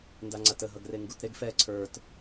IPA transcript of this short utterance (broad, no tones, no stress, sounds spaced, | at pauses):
n d a ŋ͡ǀ a t ə ɦ ʌ ɡ r e ŋ ɡ u t ɾ e ɡ f ɛ ǀʰ ə˞ t